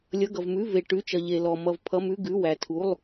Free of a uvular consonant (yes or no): yes